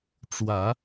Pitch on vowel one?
low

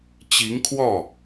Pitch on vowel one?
rising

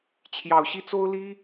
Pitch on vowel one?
low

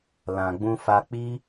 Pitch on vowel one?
low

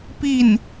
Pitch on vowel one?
falling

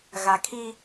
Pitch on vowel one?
low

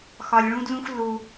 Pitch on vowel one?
low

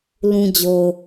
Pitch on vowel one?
low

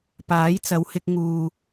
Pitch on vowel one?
rising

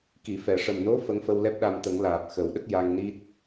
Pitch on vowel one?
low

